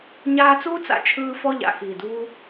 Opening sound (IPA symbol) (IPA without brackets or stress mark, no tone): ɲ